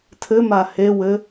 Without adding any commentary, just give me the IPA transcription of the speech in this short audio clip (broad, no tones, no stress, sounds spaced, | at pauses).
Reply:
tʰ ɘ m a h e w ɘ